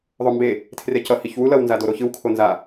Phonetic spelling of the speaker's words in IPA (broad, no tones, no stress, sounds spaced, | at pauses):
ðˤ o m b e | tʰ r e c ʌ h i ç w u l ʌ w n z a d o ɾ o ç ɯ w kʰ o n z a